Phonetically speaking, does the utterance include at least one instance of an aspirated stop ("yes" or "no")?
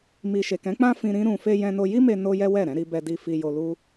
no